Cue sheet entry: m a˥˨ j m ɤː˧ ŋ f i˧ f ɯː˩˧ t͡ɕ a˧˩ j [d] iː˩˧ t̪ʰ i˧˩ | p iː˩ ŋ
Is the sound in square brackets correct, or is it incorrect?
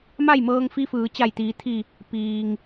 incorrect: t̪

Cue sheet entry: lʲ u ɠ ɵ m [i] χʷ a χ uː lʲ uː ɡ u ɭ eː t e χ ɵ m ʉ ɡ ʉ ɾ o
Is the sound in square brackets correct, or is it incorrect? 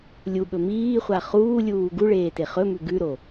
incorrect: iː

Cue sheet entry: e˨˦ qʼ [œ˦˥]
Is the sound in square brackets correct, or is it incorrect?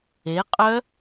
correct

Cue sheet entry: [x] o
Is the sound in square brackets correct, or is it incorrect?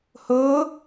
incorrect: h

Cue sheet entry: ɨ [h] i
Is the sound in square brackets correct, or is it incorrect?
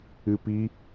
incorrect: p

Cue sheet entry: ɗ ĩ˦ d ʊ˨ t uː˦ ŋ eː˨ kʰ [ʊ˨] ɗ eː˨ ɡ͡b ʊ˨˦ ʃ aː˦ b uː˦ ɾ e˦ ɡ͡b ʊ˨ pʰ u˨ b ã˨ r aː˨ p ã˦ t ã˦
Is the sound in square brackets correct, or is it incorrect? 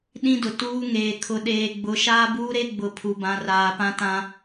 correct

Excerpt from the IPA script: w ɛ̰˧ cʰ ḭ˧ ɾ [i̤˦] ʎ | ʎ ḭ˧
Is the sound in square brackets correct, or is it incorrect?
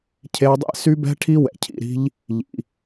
correct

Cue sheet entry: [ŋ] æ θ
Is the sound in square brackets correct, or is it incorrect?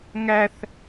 correct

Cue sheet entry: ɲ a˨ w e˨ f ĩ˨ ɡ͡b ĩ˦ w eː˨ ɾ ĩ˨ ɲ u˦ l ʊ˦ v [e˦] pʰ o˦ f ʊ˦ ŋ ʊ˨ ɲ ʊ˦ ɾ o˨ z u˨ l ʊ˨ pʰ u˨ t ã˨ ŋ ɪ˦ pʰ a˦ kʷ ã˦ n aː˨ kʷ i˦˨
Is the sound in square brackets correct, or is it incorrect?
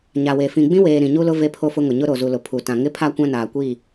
correct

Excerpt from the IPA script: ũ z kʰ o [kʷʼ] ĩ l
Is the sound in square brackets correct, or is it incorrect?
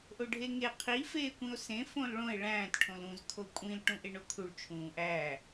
correct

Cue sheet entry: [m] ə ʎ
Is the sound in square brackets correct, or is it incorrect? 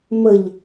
correct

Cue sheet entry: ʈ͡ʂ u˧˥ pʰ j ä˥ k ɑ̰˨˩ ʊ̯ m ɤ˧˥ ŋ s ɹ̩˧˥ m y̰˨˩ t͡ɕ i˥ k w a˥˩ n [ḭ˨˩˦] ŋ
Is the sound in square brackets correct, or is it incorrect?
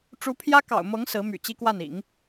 correct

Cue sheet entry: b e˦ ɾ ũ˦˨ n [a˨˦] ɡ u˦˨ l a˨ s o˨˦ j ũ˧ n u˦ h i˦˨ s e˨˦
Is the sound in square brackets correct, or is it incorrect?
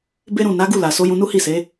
correct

